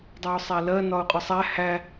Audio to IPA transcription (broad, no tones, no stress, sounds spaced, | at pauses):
dˤ ɛ ʊ̯ sˤ æ l ɜ n ɒ ʊ̯ qʼ ʊ sˤ æ h æ